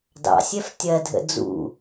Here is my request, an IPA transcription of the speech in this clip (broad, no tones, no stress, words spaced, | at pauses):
dɑ̰sʲɛf tʲɜdʱə̰ d͡zṵ